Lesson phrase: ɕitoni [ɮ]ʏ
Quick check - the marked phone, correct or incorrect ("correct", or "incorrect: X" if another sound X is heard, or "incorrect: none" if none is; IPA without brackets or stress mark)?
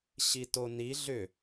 correct